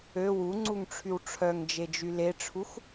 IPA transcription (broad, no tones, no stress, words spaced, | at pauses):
ø wuŋ͡ǀuŋʈ͡ʂʰyw ʈ͡ʂʰœŋd͡ʒed͡ʒy leʈ͡ʂʰux